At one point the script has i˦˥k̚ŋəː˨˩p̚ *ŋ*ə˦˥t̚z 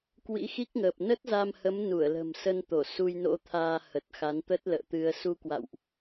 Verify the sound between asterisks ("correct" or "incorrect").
incorrect